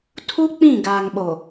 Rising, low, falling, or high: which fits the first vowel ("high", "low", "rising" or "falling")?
high